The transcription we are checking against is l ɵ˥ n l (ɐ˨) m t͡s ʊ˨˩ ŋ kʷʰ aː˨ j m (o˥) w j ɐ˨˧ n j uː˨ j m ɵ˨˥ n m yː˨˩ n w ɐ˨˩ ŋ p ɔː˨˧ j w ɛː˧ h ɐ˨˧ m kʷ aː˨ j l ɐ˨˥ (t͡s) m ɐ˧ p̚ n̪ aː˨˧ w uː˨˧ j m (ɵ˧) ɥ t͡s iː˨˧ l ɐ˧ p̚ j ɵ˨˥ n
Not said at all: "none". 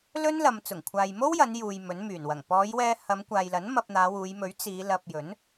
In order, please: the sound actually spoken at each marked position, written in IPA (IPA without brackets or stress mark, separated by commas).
ɐ˨, o˥, n, ɵ˨˥